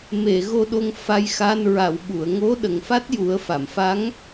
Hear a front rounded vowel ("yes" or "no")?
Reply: no